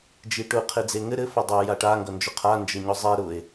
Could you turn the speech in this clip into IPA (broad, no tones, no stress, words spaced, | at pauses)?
d͡ʒiʈʊ qʰed͡zeŋɘ ɾɘ fʊdˤa jaʈa ŋɡʌnd͡ʒʊqʰa nd͡ʒɘɲʊzˤe ɾʊe̯